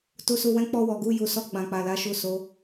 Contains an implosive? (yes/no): no